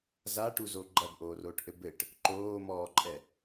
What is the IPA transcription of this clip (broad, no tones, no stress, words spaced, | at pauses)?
zaʈuzo ɡ͡ǃɐbʔoːroːʈʔɘ bɘʈ | ǃoːmɔːǃʼɛ